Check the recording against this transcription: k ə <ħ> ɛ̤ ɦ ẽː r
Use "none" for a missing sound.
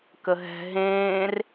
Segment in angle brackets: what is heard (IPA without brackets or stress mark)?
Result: ɦ